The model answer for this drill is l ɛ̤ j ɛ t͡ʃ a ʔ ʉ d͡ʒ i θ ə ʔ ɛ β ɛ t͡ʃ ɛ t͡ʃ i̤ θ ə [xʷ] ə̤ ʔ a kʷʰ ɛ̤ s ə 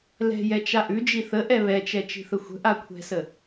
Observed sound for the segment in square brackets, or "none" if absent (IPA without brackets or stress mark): xʷ